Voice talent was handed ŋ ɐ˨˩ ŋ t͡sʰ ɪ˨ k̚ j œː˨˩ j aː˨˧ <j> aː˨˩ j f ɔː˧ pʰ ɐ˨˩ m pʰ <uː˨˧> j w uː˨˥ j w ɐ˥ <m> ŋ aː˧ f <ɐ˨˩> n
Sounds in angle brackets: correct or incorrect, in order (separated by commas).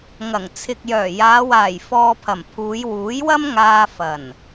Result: incorrect, correct, correct, correct